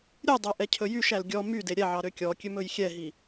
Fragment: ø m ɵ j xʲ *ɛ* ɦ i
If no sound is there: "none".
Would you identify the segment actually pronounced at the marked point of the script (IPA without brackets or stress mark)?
ɛ